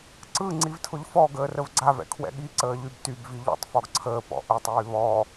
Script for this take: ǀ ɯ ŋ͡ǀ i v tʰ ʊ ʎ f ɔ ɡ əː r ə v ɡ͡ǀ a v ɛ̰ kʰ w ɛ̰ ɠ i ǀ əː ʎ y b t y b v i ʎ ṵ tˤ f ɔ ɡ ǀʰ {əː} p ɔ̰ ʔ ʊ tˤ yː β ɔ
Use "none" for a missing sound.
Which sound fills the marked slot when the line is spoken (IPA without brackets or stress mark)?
əː